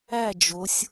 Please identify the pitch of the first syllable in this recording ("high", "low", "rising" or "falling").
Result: falling